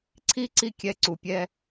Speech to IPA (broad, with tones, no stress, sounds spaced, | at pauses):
ǀʰ i˥ ǀ i˥ kʲ ɛ˧ ǀ u˩ pʲ ɛ˧